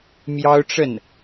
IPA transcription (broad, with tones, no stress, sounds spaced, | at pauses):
m j ɑ˥ ʊ̯ ʈ͡ʂ ə˥˩ n